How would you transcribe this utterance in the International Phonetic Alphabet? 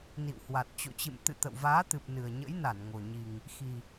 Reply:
n ḭ˧˨ w h w a˨˩ t̚ t͡ɕ o̰˧˨ t͡ɕ ɨ̰˧˨ m t̪ ɨ̰˧˨ t̪ ə̰˧˨ w v aː˨˦ t̪ ɨ˨˩ p̚ n ɨ˨˩ ə̯ ɲ ə̰˧˥ j n a˧˩ n ŋ o˨˩ ɲ i˨˩ ŋ | x i˨˩

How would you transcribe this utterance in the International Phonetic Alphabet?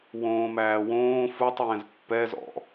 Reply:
w õː m æː w õː f u tˤ j ɛ̃ z pː ɛ z ɔ̰

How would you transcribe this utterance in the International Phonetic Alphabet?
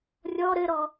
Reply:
rʲ ɔ ɾ ɘ ɾ ɔ

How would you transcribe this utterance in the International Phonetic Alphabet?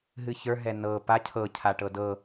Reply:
ɦ ɨ ç ə˞ ɦ ɛ n ɤ p a cʰ ɤ cʰ a ʈ ɤ d ɤ

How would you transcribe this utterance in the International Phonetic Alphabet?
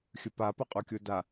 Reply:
xʲ ɯ p a p ʌ qʼ u kʲ u d a

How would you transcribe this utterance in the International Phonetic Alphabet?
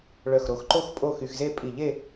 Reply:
ɭ œ˧˩ x ɾ o˧ x ǃ o˥ x pʼ o˥˧ x y˧ x z e˥˧ pʼ i˧˩ ʎ e˥˧

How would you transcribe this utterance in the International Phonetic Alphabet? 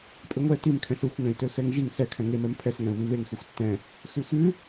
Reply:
pʼ ɪ ŋʷ ɛ t i m kʰ ɛ̃ s ɯ xʷ ŋ ɛ̃ i̯ t ø x ɛ ŋ ʒ i ŋ s ɛ kʰ ɛ̃ ŋ e m ɛ m pʰ ɛ s ŋ ɛ̃ u̯ β i β e ŋ x ø xʷ tː ɛ̃ | x ʉ x ʉ

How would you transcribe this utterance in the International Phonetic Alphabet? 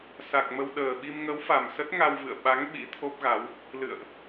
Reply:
s a˨˩ k̚ m ə˧ w ɗ əː˨˩ ɓ i˧ m ŋ ə˨˦ w f a˨˩ m s ə˦˥ t̚ ŋ a˧ w v ɨ̰˧˨ ə̯ ɓ a˨˦ ŋ ɓ ḭ˧˥ t̪ʰ o˦˥ p̚ ɣ a˨˦ w | l ɨ̰˧˨ ə̯ ʔ

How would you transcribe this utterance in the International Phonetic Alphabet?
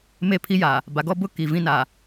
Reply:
m e˦˨ pʰ i˦ j aː˨ | b a˨ ɡ ɔ˦ b ʊ˦ k i˨ v ĩ˦ n aː˨

